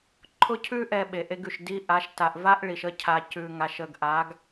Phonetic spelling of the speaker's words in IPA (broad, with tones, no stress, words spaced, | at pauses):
ǃʰʊ˦cʰʉ˦ ʔɛ˦ɓe˨ʔe˦ɡʉ˨ʃ di˦ʔa˨˦ʃ ta˨ʔva˦ʔ ɭi˨ʃə˦ cʰa˨ cʉ˨ŋa˨ʃ ə˨ɡʔa˨˦ɡ